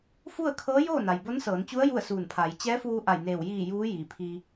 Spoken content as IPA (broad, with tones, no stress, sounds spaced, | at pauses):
f u˥˨ ə̯ kʰ ɤː˧˥ j oː˥˨ n a˩ j b o˧˥ n s ɤː˩˧ n t͡ɕ u˧˥ ə̯ j u˥˨ ə̯ s uː˧˩ n pʰ aː˩˧ j t͡ɕ ɛː˧˥ f uː˧ ʔ a˧˩ j n eː˧˩ w j iː˧˩ j uː˧˥ j iː˩ pʰ i˧